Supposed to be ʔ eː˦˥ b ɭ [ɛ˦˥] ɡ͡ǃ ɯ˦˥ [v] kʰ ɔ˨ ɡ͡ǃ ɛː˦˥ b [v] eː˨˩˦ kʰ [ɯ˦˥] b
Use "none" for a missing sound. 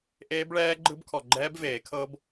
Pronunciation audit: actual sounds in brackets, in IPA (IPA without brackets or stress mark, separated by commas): ɛː˦˥, b, v, ɤ˦˥